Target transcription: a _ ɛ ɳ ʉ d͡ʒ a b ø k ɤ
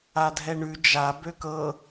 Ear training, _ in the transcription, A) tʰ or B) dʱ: B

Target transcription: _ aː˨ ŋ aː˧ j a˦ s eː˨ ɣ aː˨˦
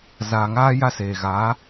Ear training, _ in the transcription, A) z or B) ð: A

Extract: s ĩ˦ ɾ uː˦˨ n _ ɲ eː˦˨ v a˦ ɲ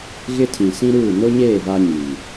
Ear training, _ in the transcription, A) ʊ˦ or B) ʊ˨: A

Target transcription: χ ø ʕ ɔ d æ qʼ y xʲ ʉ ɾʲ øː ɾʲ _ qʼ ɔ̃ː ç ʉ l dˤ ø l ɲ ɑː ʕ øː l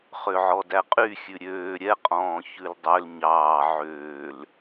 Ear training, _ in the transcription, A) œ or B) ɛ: B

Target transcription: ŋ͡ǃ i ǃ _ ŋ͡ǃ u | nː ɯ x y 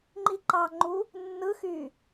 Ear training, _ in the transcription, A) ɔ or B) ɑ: B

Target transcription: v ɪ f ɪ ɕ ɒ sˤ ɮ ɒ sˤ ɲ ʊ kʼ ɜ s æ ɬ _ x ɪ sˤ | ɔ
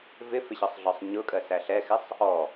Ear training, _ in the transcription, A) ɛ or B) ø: A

